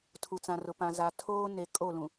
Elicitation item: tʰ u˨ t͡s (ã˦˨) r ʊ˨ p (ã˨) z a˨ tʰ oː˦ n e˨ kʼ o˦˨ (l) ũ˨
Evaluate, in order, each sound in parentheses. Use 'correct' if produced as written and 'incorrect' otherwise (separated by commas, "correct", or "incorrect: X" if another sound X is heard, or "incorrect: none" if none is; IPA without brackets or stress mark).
incorrect: ã˨, correct, correct